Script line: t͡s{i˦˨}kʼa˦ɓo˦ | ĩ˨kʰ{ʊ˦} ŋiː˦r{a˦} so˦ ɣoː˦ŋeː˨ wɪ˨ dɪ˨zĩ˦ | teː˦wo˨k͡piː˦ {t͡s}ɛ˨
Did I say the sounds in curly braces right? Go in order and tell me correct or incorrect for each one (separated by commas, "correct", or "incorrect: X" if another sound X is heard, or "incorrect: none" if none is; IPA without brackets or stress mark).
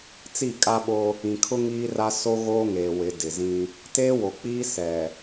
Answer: correct, correct, correct, incorrect: s